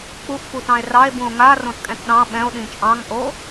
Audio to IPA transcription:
k͡p u ʔ f u t ɑ̃ e̯ r ɑ e̯ b ũ o̯ ŋ a r õ t kʼ ɛ̃ t ɗ ɑ̃ ɓ ɛ̃ o̯ ɗ ĩ t͡ʃʼ ɑ̃ ŋ ʔ o

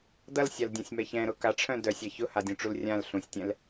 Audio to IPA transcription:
d ʌ l sʲ a l dʲ ã sʲ m ɛ ç ɛ̃ ɾ ʊ k a ʈ͡ʂʰ œ̃ d œ sʲ a ç ʊ h a dʲ ũ ʈ͡ʂ u l rʲ ã l ɬ ũ sʲ tʲ ɛ̃ l

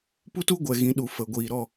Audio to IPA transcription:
p u˦ t u˦ ɡʷ ɛ˨ ɣ ĩ˨˦ ɗ u˨ f ə˨ ɡʷ iː˨ ɾ ɔ˦˨

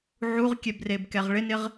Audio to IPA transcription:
ʕ u ʁ kʲ ɛ b r e b k ɛ ʁ ɭ ɪ n ɪ ʁ

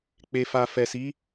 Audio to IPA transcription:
k͡p e˨ f a˨ f ɛ˨ s i˨˦

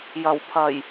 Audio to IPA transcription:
j ɐ˨˩ w pʰ ɐ˨˩ j

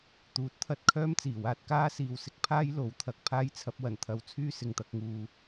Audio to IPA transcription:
t̪ uː˨˥ t̚ t̪ʰ ɐ˧ t̚ kʰ œː˥ m t͡s iː˨˩ w aː˧ t̚ k aː˥ s iː˨ w s ɪ˧ k̚ pʰ aː˥ j l o˨˥ w t̪ʰ ɐ˨˥ k̚ pʰ aː˥ j t͡sʰ ɐ˧ p̚ w ɐ˨˩ n t̪ʰ ɐ˨˧ w t͡sʰ yː˥ s ɪ˨ ŋ t̪ ɐ˧ k̚ ŋ uː˨

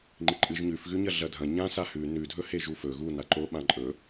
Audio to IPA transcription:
ŋ͡ǃ i ǃʼ ɨ ʒ ɲ ʉ f ɣ ʉ ɲ ɐ ɮ ɐ dʱ ɐ̃ ɲ ã s a h ʉ n ʉ dʱ ɵ h e ʒ u f ɵ ɣ u n a ǃ o ɓ ã ǃʼ ɵ

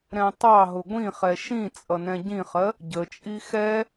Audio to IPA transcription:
ɾ ɛ̃ tˤ ɑ ɦ ʊ ɡʷ ĩ χ ɛ ʃ ĩ t͡sʼ ʌ n ɛ̃ ɟ ĩ χ ɜ | ɟ ə t͡ʃʼ i x ɛ

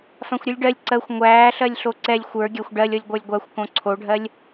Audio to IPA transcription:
f ã xʷ ɾʲ u lʲ ɖ ɜ lʲ ǀ ɜ xʷ ŋʷ æː ɬ ɜ lʲ ɬ o ǀ ɛ lʲ xʷ ə˞ ɡʲ æ xʷ ɖ ɜ lʲ ɔ lʲ ɡʷ ə˞ lʲ ɡʷ a xʷ k õ ǀʰ o ɖʱ ɜ lʲ

